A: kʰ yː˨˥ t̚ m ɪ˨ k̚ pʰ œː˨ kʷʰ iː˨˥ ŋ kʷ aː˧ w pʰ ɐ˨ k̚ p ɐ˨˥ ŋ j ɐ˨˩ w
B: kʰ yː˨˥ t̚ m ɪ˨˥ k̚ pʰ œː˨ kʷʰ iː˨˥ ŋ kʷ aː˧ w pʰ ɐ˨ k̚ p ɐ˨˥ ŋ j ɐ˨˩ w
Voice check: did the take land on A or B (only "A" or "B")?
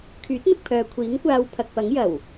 A